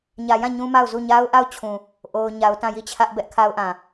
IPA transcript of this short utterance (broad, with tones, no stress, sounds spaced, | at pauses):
ɲ ä˨ j ã˦˨ ɲ ũ˦ m a˦˨ ʊ̯ z u˦˨ ɲ a˦ ʊ̯ ʔ a˦˨ ʊ̯ t͡ɕʰ ũ˨ | ʔ o˦ ʊ̯ ɲ a˦ ʊ̯ t ã˦˨ j i˦˨ t͡ɕʰ ä˦ ʔ b ɛ˦ ʔ kʰ a˦ ʊ̯ ʔ ã˨